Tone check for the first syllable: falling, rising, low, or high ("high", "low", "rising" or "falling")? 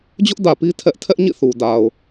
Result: high